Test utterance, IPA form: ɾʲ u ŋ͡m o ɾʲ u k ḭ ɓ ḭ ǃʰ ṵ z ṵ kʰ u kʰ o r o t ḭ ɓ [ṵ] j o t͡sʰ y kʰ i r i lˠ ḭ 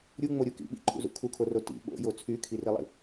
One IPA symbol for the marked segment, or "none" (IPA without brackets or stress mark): o̰